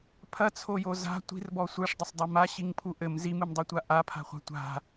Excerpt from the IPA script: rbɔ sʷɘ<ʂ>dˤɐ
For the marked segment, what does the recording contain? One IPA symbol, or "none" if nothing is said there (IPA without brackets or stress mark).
ʂ